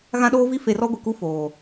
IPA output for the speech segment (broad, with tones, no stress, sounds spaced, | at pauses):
ɣ ã˦ ɗ oː˦ v i˦ f e˨ r ɔ˦ ɡʷ ɪ˨ k u˦ f oː˨